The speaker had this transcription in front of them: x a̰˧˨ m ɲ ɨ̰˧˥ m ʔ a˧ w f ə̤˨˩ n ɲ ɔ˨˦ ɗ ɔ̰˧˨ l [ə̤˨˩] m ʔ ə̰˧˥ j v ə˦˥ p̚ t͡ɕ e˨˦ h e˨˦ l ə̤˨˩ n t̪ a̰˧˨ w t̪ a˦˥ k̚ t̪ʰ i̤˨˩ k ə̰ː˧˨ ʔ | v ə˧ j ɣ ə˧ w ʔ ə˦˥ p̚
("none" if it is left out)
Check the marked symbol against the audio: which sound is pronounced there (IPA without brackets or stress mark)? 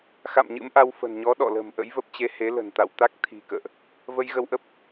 ə̤˨˩